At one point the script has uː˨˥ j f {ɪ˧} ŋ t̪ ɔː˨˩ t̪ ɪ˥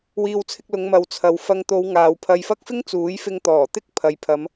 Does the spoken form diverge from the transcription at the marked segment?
no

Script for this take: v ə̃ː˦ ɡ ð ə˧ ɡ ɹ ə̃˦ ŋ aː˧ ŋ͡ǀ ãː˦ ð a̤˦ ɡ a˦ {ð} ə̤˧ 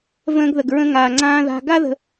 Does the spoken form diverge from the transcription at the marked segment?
no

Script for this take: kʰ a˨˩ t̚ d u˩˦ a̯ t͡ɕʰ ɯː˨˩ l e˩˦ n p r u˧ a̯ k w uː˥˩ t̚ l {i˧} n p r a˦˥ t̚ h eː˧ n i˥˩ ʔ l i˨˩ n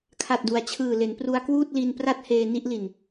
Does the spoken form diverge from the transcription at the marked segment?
no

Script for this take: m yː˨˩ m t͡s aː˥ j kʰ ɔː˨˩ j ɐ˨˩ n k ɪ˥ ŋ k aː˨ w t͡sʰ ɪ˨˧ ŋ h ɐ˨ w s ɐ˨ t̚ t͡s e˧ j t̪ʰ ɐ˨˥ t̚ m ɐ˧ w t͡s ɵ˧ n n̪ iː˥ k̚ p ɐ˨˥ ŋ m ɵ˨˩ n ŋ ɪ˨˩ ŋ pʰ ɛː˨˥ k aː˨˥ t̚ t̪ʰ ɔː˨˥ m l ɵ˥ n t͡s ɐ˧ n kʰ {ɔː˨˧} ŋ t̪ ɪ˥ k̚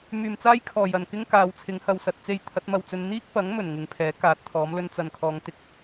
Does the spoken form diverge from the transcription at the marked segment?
no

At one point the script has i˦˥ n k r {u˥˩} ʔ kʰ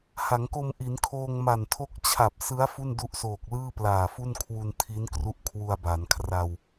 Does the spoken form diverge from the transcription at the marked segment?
yes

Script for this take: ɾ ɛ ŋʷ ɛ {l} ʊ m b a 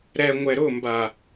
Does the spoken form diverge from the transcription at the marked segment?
yes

